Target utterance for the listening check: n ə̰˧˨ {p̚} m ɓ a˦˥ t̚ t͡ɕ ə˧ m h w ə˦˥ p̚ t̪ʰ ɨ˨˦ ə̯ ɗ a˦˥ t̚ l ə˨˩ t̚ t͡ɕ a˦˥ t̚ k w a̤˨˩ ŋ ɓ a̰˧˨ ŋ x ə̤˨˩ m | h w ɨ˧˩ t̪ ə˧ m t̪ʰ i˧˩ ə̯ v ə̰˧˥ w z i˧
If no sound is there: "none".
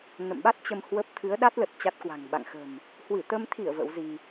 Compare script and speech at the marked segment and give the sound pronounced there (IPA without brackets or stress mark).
none